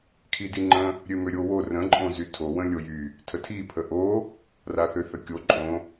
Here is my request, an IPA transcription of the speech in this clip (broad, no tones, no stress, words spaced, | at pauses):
kʰidiŋ͡ǃə̃ | ɾʲømøɾʲowo rə̃ ǃʼõzytʰo wə̃lʲojy | tʰətʰi pʰəʔo | raθøθəkʲo ǃʼõ